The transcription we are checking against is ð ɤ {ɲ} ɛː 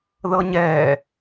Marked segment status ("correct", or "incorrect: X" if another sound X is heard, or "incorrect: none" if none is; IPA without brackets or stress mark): correct